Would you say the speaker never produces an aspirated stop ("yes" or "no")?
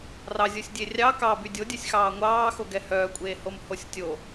yes